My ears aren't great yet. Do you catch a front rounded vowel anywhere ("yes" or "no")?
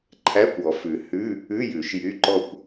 yes